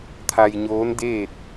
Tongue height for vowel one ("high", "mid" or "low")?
low